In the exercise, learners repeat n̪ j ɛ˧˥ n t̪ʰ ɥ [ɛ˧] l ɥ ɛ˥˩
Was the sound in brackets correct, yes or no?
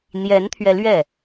yes